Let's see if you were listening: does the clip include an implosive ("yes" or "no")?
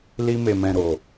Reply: no